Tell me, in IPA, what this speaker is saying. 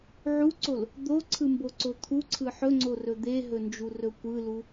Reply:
ʕuǀol | d̪oǀʰɯmboǀo t̪ʰuǀʰɯ ħɵŋ͡ǀorɵ d̪eɦɵnd͡ʒurɵ kʷɯlu

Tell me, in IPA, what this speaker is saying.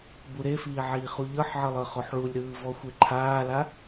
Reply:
buɾefiː ʕiːχuʎɤħʕɤ lˠɤχoħɭulʲɾɯː vɔxʷeǃʰaːla

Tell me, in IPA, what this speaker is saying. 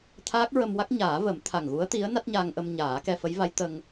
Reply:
t̪ʰaː˦˥k̚ɹə˧mwa˦˥k̚ ɲaː˨˩˦ və˨˩˦m t̪ʰa˨˩ŋɣu˧˥ə̯t̪i˧˥ə̯ na˦˥t̚ɲa˧ŋʔə˧m ɲaː˨˩˦kɛ˧fə˧˥jva˧˥j t̪ə˧ŋ

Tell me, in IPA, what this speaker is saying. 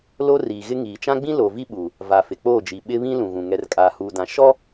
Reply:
lo˦riː˨ɣɪ˦ ŋiː˨t͡ʃã˦ɡ͡bĩ˦ lo˨vi˦ɓu˨ | va˨fɪ˨k͡poː˦˨d͡ʒi˨ ɓɪ˦βĩ˦ lũ˨ɣũ˨ ŋɛ˨rkʼaː˨huː˨dã˨ ʃɔ˦

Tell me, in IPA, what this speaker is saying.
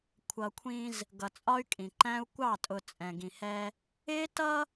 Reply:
kʷʰʌ˨kʷʰĩ˦z | ɡʌ˨t͡sʼɒ˦y̯kʼĩ˨ ǃæ̃˦u̯ kʷɑ˦˨tʼʊ˨ t͡sʼɛ̃˨ɡĩ˨hɛ˦ | ɪː˦ tʌ˦

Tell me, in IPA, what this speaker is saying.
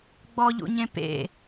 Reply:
ɡ͡bɔʎṵɲẽ pḛ

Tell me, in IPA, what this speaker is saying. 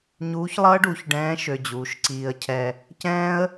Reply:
ɲuː˧˥çlˠʌː˥ɖu˩˧çɖɛ̃ː˧˥ ʃø˧d͡ʑuː˩˧ʃǀiː˧ə̯cʰɛ˧ | cɛ̃ː˥ə̯

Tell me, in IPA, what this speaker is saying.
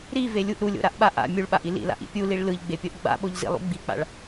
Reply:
ɾivelʲuʔ ɾulʲo̰ɾaʔɓa ʔa̰ mʲuɭɓaʔi lḭla̰ʔḭ pʲuliɭ lɯʎɡ͡bepʲoʔ ɡ͡ba̰ɓoʎzḭlˠṵ ɡ͡bik͡pa̰ɭ

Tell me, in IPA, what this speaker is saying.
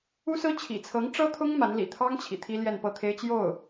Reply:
u˥sɹ̩˥ t͡ɕʰḭ˨˩t͡sʰɤ˧˥ŋʈ͡ʂɤ˥t̪ʰʊ˥ŋ ma˧˥nlḭ˨˩ t̪ʰɑ˥ŋ t͡ɕʰḭ˨˩t̪ʰi˥ ljɛ˥˧npɤ˥˩t̪ʰe˥ɪ̯ t͡ɕjo˥˩ʊ̯

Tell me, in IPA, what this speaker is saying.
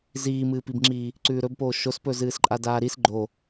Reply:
ziːmɨːpibŋ͡ǁiː | ǀʉːɾɵbpoː ʃospɵzɨːsǃʼa daːɾis ɡ͡ǃo

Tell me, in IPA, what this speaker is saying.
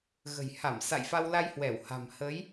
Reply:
ɣə̤˨˩jha˧˩msa̰˧˨j fa˧wla˧jhwɛ˧˩wha̤˨˩m hə˨˦j

